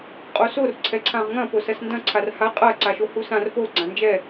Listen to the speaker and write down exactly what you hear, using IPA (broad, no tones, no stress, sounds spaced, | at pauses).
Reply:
qʼ o s o r ǀʰ ɛ ǀʰ ã ʁ ŋ ɐ̃ p o s ɐ s n d ɐ̃ ǀʰ a r h a qʼ ɐ ǀ a ʃ o h u s ã r p o ɡ͡ǀ ã n d͡ʒ ɛ